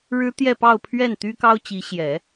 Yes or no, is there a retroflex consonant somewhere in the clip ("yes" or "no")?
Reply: yes